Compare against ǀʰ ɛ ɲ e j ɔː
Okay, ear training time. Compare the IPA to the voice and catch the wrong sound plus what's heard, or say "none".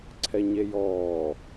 none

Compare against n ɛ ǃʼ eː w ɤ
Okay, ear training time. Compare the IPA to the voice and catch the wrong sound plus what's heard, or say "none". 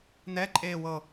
none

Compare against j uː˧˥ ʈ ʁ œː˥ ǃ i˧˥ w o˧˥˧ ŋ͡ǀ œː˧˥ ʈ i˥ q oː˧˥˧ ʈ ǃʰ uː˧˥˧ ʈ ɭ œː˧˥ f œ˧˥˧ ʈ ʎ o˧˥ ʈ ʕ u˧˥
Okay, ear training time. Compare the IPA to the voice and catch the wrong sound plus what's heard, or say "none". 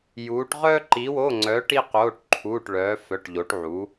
none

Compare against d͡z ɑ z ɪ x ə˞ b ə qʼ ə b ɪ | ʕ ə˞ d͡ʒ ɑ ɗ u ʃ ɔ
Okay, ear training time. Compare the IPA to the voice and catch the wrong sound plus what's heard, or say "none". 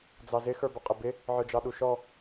none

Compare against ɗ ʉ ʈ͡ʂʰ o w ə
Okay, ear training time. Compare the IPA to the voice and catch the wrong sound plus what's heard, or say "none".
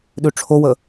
none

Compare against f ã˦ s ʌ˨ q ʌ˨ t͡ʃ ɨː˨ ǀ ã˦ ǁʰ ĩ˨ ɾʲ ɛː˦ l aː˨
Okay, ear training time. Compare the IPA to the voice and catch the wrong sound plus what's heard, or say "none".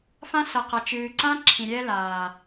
none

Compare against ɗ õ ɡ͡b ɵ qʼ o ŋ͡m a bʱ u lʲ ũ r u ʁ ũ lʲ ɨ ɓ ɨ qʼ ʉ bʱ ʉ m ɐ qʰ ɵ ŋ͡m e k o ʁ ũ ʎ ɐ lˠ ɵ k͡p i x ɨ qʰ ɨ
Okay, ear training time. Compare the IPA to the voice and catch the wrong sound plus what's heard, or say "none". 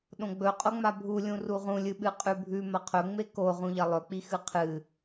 none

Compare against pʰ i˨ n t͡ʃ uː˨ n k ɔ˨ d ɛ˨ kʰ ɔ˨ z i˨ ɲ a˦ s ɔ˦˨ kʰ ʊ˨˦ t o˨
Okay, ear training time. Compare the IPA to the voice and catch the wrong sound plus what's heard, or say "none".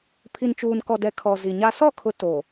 none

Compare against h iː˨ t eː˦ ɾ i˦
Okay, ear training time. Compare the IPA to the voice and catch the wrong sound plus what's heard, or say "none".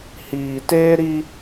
none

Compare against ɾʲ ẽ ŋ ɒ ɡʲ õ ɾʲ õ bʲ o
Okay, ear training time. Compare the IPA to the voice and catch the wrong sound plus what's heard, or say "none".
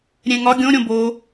bʲ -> b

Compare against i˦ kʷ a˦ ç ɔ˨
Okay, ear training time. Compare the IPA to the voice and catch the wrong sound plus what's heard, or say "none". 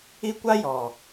ç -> j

